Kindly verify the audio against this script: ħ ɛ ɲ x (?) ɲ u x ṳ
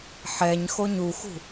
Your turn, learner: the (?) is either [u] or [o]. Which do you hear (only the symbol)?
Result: o